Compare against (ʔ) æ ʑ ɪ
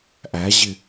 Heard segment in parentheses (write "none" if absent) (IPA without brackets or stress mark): ʔ